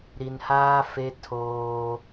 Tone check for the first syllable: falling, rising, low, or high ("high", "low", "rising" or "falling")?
low